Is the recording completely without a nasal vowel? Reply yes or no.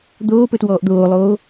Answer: yes